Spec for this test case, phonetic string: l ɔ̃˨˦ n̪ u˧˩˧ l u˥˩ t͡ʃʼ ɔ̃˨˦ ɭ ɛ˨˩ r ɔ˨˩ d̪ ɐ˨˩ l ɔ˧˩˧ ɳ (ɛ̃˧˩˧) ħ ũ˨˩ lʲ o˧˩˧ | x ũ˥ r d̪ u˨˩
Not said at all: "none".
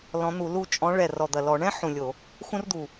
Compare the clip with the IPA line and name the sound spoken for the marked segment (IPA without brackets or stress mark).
ɛ̃˥